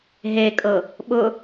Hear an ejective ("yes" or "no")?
yes